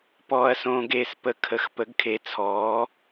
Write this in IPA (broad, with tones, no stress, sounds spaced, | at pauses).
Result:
p ɔː˧ ɐ̯ s õː˧ ɡ eː˧ s p ə˧ kʰ ə˩˥ x p ə˩˥ ɡ kʰ e˩˥ t͡sʰ ɔː˩˥